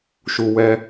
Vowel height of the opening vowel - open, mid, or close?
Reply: close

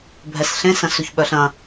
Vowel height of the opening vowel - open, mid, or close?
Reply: mid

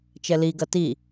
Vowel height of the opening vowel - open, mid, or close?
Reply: mid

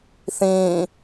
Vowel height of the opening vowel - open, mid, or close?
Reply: close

